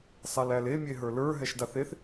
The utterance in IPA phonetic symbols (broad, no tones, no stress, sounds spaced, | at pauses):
sˤ a l æ l e mʲ e ɦ ə˞ l ə˞ ɦ ɛ ʃ d a θ e θ